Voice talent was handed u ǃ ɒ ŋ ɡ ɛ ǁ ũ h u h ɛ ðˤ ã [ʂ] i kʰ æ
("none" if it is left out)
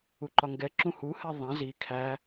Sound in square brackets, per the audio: z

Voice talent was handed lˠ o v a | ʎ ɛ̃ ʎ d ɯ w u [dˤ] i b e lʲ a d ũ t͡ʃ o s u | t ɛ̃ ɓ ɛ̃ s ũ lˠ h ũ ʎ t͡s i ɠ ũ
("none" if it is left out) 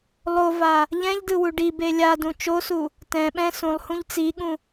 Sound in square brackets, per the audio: ɖ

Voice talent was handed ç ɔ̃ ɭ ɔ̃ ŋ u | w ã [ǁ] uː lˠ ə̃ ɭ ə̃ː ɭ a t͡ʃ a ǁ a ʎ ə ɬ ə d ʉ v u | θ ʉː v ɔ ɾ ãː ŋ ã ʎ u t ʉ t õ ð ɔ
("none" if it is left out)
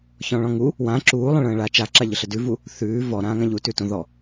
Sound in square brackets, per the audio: ǁ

